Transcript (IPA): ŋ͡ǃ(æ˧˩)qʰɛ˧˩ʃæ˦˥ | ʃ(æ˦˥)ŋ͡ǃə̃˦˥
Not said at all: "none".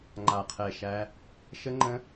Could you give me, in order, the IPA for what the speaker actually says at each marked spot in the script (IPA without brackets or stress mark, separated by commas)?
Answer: a˧˩, ə˦˥